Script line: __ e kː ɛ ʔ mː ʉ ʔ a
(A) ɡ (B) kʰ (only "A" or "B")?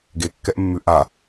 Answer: A